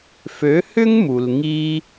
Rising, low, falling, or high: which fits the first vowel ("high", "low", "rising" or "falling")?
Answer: rising